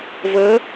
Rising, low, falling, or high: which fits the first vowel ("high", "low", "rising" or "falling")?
rising